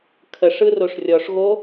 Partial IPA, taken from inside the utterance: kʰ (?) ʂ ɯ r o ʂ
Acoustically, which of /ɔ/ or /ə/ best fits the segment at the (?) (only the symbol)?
ə